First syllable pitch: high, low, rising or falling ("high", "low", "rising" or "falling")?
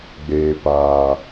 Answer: low